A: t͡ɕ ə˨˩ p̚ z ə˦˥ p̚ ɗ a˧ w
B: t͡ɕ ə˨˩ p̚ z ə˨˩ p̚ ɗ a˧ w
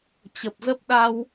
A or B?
A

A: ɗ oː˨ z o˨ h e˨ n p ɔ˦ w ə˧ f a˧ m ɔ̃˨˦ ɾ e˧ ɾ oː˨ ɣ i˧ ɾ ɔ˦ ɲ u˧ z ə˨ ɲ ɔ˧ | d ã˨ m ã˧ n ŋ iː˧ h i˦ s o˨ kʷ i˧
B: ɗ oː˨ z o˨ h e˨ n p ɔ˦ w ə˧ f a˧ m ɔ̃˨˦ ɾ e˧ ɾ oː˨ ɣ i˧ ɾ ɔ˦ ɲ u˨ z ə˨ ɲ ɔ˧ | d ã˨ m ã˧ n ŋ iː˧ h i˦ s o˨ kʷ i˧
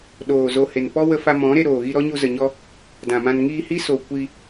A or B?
A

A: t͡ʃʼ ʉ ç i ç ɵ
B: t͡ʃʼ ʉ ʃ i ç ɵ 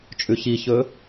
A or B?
A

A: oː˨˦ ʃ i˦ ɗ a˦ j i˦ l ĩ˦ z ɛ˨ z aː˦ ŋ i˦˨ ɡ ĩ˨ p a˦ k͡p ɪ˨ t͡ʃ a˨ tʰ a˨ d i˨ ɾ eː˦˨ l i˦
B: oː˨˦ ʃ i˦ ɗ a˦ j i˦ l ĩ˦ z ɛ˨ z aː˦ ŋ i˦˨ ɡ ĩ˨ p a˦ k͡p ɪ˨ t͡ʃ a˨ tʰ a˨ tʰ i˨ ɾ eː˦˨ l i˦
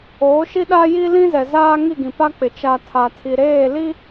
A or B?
B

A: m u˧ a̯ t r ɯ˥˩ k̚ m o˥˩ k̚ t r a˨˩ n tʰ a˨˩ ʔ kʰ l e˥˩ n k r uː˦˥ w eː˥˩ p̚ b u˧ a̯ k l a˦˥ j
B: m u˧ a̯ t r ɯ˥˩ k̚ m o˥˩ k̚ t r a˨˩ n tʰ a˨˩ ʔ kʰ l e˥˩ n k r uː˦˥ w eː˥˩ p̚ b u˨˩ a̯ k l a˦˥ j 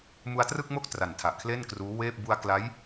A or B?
A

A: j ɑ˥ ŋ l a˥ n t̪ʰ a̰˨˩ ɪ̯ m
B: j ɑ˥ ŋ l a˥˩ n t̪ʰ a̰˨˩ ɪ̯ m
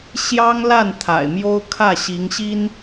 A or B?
B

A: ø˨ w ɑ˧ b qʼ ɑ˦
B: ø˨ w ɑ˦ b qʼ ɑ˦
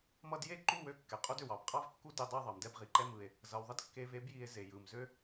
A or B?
A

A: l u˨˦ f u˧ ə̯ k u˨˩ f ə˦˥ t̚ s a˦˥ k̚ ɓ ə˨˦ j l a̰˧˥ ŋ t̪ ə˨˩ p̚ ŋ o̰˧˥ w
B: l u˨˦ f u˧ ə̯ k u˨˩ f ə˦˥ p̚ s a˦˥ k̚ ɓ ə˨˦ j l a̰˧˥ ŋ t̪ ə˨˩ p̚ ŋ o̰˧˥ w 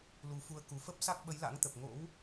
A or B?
B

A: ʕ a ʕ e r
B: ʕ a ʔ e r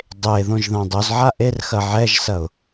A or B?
B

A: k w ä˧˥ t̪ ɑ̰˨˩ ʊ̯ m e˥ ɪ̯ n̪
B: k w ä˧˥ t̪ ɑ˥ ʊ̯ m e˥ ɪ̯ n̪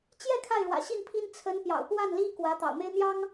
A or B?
A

